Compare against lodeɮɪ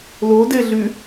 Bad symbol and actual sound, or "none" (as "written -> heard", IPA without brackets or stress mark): ɪ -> y